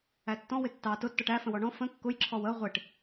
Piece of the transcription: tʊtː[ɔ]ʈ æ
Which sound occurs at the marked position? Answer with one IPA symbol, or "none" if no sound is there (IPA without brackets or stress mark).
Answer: ɔ